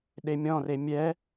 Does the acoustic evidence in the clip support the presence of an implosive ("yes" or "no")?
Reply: yes